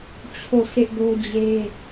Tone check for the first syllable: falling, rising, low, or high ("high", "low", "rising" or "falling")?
falling